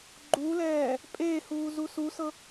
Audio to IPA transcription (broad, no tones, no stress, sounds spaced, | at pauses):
ɡ͡ǃ u l ɛː | pʼ eː h uː z u s u s ɤ